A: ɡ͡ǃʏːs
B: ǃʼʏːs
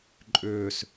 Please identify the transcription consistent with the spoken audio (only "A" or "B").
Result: B